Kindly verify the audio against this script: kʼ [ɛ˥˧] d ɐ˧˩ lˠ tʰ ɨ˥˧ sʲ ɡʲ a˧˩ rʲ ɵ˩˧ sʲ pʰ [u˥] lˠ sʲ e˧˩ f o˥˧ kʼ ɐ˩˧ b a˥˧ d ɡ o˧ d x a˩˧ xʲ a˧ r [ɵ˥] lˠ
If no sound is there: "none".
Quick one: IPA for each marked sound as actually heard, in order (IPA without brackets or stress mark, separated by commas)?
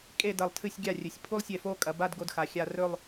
e˥˧, u˥, ɵ˥˧